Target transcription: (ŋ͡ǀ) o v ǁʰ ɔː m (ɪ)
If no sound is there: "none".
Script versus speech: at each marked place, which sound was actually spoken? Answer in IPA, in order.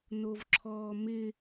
n, ɪ

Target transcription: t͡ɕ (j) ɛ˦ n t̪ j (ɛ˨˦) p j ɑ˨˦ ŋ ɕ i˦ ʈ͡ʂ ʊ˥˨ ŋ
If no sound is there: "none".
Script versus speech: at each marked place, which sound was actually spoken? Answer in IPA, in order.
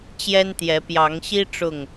j, ɛ˨˦

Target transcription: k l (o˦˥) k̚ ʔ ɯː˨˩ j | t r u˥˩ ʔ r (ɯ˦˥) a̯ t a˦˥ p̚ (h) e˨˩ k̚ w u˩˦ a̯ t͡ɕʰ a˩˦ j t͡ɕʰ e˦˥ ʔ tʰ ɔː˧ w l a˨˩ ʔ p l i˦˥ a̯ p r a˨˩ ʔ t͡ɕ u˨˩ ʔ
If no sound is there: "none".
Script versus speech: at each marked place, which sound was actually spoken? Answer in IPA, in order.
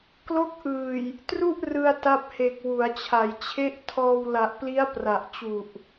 o˦˥, ɯ˧, h

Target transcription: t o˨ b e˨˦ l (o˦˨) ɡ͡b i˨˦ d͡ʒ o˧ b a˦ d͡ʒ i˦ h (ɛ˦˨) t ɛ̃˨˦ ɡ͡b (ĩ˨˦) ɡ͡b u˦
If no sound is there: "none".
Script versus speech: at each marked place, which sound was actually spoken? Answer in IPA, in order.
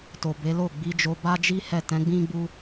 o˦˨, ɛ˦˨, ĩ˦

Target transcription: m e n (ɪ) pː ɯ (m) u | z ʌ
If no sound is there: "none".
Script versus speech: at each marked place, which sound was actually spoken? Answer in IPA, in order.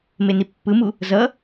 i, m

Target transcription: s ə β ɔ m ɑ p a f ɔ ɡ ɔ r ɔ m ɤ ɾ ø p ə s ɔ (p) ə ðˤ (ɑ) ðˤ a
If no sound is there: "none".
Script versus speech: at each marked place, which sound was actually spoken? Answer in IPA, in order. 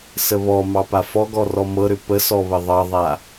β, ɑ

